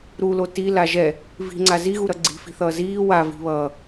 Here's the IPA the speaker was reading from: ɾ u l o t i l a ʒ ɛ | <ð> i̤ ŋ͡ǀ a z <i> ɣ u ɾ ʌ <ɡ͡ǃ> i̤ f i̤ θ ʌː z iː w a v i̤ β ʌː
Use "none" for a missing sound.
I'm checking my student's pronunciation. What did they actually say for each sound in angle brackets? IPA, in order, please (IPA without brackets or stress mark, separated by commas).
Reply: v, i, ɡ͡ǀ